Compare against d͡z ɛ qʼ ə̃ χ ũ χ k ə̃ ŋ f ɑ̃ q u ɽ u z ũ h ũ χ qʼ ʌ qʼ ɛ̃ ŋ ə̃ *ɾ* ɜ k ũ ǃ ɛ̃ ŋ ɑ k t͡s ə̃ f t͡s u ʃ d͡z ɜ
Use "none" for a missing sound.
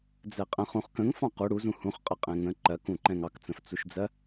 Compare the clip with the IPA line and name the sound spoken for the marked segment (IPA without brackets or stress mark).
ǃ